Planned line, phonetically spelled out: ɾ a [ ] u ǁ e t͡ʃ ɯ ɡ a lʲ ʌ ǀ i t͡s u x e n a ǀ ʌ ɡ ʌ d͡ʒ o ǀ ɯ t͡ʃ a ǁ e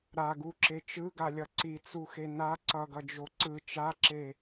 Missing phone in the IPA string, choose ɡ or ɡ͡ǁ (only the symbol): ɡ